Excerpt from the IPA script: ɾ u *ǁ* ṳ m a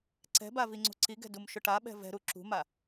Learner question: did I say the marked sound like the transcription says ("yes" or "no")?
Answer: yes